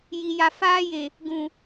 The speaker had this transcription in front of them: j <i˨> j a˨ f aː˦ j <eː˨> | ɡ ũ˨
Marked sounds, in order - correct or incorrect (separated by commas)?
correct, incorrect